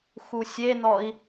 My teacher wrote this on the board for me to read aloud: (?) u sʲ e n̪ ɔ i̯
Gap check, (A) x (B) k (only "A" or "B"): A